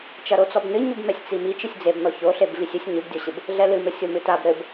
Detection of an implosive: absent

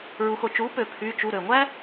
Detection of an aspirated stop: present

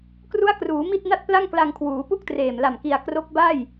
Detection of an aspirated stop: present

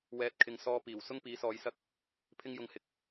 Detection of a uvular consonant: absent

